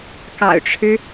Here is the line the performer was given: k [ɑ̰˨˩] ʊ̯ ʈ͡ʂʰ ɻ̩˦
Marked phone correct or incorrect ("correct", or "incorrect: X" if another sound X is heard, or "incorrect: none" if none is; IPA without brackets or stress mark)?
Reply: correct